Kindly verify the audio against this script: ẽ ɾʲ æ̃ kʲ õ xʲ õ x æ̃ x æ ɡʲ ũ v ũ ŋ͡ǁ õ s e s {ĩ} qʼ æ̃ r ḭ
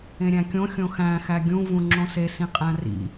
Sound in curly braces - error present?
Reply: no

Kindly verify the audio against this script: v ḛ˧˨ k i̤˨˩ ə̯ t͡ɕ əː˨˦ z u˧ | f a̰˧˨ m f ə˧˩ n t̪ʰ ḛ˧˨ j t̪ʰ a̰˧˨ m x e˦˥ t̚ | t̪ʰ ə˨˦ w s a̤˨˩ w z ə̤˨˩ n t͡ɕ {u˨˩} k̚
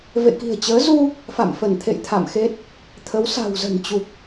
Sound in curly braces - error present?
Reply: no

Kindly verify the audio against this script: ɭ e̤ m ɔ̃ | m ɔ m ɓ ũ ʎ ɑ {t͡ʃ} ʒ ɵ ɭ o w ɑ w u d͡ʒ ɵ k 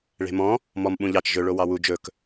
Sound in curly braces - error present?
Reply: no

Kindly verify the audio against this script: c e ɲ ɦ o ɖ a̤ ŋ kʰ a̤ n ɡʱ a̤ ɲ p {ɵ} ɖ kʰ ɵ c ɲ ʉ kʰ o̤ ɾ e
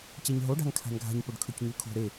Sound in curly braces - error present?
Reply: no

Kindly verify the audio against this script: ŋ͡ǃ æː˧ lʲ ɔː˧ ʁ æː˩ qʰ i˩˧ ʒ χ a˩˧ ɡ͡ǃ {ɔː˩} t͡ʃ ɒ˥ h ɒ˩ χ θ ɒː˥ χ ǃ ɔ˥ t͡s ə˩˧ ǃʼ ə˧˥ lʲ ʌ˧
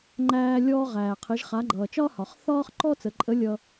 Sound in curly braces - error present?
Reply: yes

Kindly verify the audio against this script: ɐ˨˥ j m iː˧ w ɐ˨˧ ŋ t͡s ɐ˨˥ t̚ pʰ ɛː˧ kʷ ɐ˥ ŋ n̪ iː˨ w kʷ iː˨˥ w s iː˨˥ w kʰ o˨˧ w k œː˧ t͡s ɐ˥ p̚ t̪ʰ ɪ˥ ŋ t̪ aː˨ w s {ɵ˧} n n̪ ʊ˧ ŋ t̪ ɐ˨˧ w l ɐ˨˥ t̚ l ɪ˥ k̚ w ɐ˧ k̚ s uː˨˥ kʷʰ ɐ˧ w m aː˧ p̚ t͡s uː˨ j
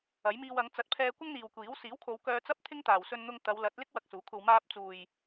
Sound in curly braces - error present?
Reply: no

